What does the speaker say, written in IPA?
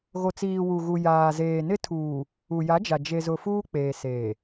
ɣ o˨ t͡s iː˨ w u˨ ɣ u˨ j aː˨ z eː˨ n ɪ˦ tʰ uː˨ | u˨ j a˨˦ d͡ʒ a˨ d͡ʒ e˨ z ʊ˨ f uː˦ k͡p eː˨ s eː˨

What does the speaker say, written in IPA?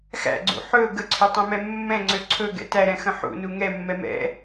x æ̰ ɡ͡ǀ ṵ ħ ɵ ɡ ə ǀʰ ø tˤ ɛ̃ m ɛ mː ɛ̃ ŋ͡ǀ ø ǀʰ ɵ ɡ ɛ̰ t æ ɾ ɛ̃ x ə̃ ħ ṵ n u ŋ ɛ mː ɛ m ɛ̰

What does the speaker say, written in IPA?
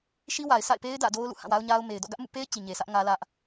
ʃ i˦ w a˨ ɪ̯ sʰ a̰˦˨ ɪ̯ p e˦ ɪ̯ d ä̰˦˨ d o˦ ʊ̯ l ṵ˦˨ h ã˦˨ w a˦ ʊ̯ ɲ a˦ ʊ̯ m e˨ ɪ̯ d ɔ̰˦˨ ɡ ä˦ ʔ m ṵ˦˨ p e˦ ɪ̯ t͡ɕ i˨ ɲ e˨ sʰ ä˦ ʔ ŋ ä˦ l ä˦ ʔ

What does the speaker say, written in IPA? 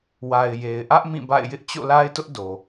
w a˨ ɪ̯ j e˨ ɪ̯ ʔ ä˦ ʔ m ĩ˦˨ b a̰˦˨ ɪ̯ j ɪ˦ ʔ t͡ɕ o̰˦˨ l a˦ ɪ̯ t ʊ˦ ʔ d o˨

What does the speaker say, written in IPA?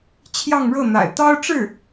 t͡ɕʰ j ɑ˥˧ ŋ ɻ ɤ˥˩ n̪ a̰˨˩ ɪ̯ t̪ ɑ˥ ʊ̯ ʈ͡ʂ ɻ̩˥˩

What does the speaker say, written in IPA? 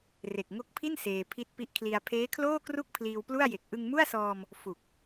r e˨˩ k̚ ŋ o˦˥ k̚ pʰ i˥˩ n s eː˧ pʰ i˥˩ t̚ p i˥˩ ʔ kʰ l i˧ a̯ pʰ eː˦˥ kʰ l oː˥˩ k r u˥˩ k̚ pʰ l iː˧ w p l u˥˩ a̯ j e˨˩ k̚ ʔ ɯ˧ ŋ m u˥˩ a̯ s ɔː˧ m | f u˨˩ k̚

